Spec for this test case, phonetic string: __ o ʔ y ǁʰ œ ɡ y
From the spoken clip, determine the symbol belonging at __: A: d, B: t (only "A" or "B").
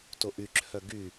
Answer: B